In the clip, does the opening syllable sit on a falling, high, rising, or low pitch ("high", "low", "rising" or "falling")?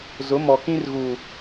rising